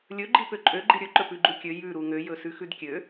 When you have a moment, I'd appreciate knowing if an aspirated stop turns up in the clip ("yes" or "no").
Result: no